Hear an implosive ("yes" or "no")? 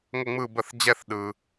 yes